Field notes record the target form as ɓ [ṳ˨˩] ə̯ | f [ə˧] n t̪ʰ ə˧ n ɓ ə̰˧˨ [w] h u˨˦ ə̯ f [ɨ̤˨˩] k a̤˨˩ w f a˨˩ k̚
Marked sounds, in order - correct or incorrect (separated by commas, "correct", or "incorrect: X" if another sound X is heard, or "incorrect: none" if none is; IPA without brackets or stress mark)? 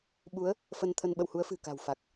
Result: incorrect: u˨˦, correct, correct, correct